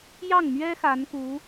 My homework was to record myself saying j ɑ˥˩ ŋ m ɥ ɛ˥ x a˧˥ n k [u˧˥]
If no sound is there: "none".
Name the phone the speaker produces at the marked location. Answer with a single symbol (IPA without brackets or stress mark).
u˧˥